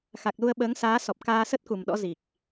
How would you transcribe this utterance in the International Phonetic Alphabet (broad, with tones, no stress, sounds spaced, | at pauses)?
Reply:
x a˨˩ k̚ l u˧ ə̯ ɓ əː˨˦ ŋ s aː˨˦ s ɔ˨˩ p̚ k aː˧ s ə˦˥ t̚ k u˨˩ m ɗ ɔ̰˧˥ z i˨˩ k̚